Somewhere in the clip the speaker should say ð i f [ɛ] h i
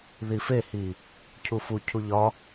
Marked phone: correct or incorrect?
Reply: incorrect